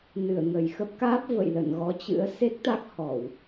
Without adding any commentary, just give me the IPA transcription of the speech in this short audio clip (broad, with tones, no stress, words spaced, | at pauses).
nɨ˧˩ə̯ŋə˨˩jxə˦˥p̚kaː˦˥p̚ və̰˧˨j lə̰˧˨n ɣɔ˨˦t͡ɕɨ̰˧˥ə̯ se˦˥k̚t̪a˦˥k̚hɔ˧˩˨w